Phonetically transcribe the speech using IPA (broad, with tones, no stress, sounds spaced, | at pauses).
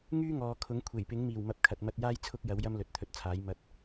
ŋ yː˥ ŋ ɔː˨ kʰ ʊ˨˥ ŋ kʷʰ e˨˩ j p ɪ˨˥ ŋ m iː˨˩ w m ɐ˨˥ p̚ kʰ ɐ˨ t̚ m ɐ˧ t̚ j aː˥ j t͡sʰ ʊ˥ k̚ j ɐ˨˥ w j ɐ˥ m l ɵ˨˥ t̚ t̪ʰ ɵ˧ t̚ t͡sʰ aː˨˥ j m ɐ˨˥ t̚